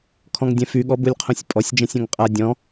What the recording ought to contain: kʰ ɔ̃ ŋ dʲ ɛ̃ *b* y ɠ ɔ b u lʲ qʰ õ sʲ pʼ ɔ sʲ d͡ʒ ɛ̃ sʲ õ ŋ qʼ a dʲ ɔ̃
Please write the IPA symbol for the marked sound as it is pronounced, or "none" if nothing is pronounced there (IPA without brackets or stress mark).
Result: f